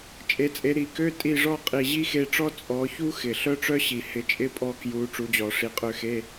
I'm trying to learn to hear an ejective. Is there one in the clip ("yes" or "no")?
yes